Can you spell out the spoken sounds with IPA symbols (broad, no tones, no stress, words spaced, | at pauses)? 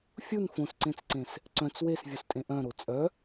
fʲun fõsǀẽt͡sǀẽs | ǀœ̃t͡s wesvʲostʼẽ ʔœ̃ɾo t͡sʼœ